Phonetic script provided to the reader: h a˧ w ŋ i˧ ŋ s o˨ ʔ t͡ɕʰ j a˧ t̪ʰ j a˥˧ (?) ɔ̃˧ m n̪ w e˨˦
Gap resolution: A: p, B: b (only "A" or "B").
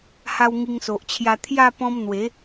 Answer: A